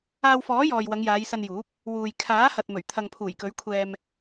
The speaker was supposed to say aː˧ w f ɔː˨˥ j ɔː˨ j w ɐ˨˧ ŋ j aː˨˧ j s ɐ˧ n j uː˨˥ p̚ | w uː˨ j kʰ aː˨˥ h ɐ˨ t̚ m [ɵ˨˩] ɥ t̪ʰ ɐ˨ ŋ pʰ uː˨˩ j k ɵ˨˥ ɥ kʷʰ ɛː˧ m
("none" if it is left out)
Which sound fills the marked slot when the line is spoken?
ɵ˨˩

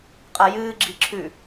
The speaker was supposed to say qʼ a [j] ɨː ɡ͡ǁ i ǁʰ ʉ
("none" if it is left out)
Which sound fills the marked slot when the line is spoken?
j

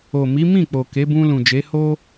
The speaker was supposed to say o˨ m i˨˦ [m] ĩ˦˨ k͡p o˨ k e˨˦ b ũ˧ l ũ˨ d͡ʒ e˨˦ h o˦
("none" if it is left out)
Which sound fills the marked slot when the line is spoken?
m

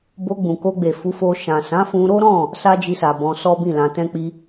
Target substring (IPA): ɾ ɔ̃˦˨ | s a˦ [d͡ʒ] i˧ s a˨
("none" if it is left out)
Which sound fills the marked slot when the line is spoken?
d͡ʒ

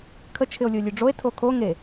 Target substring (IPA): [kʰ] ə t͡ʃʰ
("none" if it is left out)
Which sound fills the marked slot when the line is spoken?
kʰ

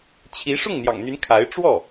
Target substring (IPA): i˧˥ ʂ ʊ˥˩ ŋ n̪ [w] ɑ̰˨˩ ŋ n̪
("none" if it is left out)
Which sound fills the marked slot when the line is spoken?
j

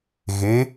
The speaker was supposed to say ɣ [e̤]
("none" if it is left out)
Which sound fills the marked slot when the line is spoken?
e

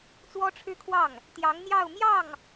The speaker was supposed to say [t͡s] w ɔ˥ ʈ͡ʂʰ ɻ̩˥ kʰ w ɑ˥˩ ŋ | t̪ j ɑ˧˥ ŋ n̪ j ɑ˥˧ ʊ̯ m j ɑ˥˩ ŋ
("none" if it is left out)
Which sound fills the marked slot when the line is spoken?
t͡s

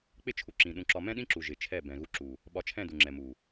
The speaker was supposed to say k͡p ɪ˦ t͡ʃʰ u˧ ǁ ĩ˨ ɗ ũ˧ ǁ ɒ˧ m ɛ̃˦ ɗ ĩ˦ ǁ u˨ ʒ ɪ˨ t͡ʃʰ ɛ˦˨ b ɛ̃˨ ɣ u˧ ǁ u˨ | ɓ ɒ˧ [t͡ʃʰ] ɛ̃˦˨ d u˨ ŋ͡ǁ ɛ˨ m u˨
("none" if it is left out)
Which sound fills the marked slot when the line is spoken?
t͡ʃʰ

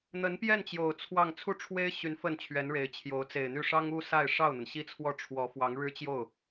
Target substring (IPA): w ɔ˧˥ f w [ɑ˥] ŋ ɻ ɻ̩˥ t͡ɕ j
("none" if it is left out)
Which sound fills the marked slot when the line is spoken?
ɑ˧˥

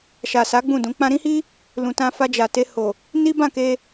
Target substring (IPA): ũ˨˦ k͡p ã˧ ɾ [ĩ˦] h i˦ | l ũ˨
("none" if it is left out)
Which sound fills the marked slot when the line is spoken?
ĩ˦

